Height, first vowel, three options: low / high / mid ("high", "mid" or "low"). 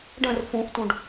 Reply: mid